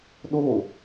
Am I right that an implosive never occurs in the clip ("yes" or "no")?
no